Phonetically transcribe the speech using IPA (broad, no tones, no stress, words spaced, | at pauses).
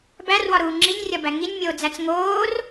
bærwɒɾuː ŋ͡ǁinʲrʲɒbæ ŋinʲmʲoːd͡zæt͡s ŋoːr